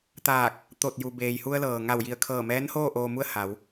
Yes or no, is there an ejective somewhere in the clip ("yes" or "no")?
no